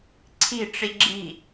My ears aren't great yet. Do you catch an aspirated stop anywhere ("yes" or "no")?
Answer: yes